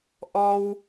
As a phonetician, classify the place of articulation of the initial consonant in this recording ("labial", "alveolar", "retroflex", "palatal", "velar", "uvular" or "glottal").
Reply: glottal